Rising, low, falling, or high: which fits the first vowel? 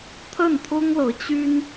falling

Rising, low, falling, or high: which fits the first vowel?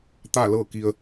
falling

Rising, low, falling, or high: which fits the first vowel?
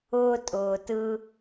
high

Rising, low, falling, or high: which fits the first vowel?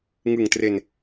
low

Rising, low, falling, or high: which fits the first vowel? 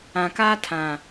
low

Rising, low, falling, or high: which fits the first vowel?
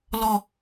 low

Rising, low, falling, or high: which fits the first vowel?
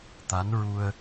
rising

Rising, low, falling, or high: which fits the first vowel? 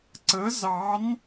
rising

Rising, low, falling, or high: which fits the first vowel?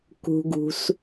low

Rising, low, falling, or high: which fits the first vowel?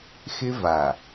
high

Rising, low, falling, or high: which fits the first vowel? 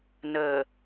low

